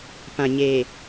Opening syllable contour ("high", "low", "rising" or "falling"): low